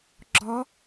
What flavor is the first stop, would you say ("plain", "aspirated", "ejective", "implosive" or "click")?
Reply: click